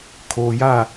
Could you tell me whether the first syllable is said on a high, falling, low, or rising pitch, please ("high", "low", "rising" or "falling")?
low